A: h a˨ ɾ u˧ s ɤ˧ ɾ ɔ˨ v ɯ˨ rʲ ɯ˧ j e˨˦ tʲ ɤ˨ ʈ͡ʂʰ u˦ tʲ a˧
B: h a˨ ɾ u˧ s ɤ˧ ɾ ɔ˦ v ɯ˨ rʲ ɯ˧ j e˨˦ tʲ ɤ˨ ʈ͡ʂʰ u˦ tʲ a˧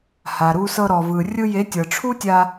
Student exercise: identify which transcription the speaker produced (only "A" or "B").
A